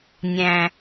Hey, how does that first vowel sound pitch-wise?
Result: low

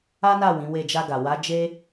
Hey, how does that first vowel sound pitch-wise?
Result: high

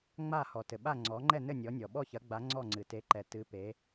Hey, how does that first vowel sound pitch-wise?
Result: falling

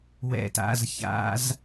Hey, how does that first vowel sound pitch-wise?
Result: low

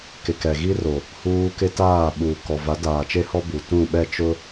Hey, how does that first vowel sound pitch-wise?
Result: low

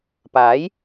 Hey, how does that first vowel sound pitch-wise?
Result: rising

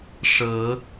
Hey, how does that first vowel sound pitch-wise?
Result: rising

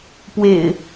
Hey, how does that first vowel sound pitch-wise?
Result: low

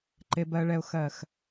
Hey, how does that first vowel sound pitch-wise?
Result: low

